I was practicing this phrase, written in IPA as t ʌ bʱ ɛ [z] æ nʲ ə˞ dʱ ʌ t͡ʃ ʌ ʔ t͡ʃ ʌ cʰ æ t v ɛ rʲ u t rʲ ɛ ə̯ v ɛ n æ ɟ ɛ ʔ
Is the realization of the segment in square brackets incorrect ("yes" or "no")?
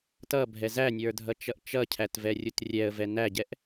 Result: no